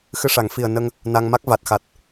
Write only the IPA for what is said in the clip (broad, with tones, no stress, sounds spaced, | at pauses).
x ɨ˧ ʂ a˨˩˦ ŋ f i˨˩ ə̯ n ə˧ ŋ | n a˧ ŋ m a˦˥ k̚ v a˨˩ t̚ x a˨˩ t̚